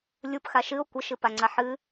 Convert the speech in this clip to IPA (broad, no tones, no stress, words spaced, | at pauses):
lʲupxa ʃɨo̯ kʷəʃɨpaŋ͡ǀa ħɨ